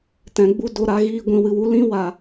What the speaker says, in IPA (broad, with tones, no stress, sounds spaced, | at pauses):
t ɛ̃˨ ɡ͡b u˧ d o˨ ɾ a˧ ɣ iː˧ ɡʷ ĩ˨ w ɨ˨ w u˧ l ĩ˦ w a˨